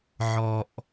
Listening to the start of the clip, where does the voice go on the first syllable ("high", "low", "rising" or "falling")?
low